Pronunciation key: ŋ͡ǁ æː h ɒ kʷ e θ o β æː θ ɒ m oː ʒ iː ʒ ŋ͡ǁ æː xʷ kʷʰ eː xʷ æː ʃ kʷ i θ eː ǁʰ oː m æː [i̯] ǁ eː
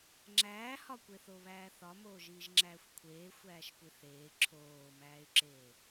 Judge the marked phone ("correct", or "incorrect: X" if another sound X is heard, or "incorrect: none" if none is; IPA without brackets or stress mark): incorrect: y̯